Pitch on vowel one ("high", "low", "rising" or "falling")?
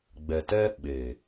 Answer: low